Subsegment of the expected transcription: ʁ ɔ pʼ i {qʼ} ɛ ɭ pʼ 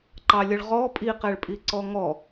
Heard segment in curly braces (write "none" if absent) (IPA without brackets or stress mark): q